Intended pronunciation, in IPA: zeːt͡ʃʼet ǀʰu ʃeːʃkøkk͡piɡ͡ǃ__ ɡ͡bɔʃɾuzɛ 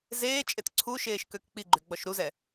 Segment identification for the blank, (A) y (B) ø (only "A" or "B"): A